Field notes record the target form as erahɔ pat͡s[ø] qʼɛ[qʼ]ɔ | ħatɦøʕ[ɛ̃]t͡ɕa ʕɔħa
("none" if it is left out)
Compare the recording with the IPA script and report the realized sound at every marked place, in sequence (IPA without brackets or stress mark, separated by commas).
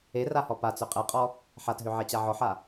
ø, qʼ, ɛ